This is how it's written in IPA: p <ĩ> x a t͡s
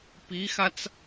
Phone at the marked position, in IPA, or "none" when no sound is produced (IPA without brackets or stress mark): i